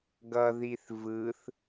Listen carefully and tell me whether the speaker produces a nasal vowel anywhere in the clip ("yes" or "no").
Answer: no